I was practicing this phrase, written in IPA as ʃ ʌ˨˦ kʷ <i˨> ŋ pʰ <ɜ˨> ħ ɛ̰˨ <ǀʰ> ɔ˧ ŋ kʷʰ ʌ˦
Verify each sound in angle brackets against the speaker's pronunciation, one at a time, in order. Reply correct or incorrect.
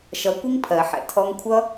incorrect, correct, incorrect

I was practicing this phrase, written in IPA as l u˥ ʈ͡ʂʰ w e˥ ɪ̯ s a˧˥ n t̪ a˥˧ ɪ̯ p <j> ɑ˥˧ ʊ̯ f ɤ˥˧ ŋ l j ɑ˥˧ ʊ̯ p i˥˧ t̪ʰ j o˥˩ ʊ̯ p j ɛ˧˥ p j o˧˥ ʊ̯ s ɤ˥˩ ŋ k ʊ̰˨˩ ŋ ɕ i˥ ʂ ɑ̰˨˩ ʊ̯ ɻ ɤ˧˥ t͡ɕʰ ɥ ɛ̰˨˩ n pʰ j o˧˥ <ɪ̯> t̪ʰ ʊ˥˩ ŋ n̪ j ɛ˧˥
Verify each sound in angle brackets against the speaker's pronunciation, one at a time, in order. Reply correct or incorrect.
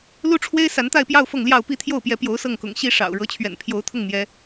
correct, incorrect

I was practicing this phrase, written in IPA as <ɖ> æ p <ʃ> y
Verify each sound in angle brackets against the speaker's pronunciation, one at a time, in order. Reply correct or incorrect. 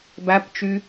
incorrect, incorrect

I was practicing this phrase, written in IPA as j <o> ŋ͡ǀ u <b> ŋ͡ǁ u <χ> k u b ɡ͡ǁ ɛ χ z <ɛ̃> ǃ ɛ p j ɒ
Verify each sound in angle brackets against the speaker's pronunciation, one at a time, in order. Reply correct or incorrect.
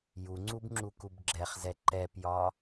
incorrect, correct, incorrect, incorrect

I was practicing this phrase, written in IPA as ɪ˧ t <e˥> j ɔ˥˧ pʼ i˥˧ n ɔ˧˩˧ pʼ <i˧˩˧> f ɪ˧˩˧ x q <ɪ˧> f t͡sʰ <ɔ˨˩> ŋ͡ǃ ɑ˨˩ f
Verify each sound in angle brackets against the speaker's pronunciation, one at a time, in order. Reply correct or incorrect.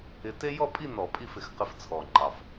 correct, incorrect, correct, correct

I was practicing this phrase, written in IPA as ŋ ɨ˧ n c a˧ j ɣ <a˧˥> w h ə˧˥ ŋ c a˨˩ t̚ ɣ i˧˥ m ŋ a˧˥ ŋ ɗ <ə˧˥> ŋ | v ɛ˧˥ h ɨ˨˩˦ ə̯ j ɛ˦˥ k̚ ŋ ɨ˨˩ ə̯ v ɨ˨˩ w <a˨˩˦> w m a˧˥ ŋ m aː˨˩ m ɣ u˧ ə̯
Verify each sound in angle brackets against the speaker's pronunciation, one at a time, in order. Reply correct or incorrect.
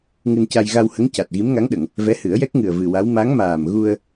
incorrect, incorrect, incorrect

